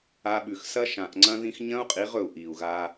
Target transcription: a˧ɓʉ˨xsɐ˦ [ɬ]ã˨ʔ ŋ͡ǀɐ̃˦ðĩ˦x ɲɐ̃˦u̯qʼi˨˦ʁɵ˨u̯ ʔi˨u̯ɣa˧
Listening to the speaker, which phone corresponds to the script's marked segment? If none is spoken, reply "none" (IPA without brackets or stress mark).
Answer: ʃ